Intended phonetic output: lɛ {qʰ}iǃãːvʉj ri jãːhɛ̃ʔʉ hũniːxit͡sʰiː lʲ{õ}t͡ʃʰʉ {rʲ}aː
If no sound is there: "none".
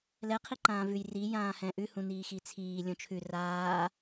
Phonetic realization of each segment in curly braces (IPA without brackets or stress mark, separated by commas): qʰ, õ, r